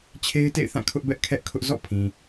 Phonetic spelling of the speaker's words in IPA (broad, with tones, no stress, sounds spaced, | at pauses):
t͡ɕʰ e˦ ɪ̯ t ḛ˦˨ ɪ̯ θ ã˦˨ kʰ ʊ˦ ʔ b ɛ˦ ʔ kʰ ɛ˦ ʔ kʰ ʊ˦ ʔ z ɔ̰˦˨ pʰ ĩ˨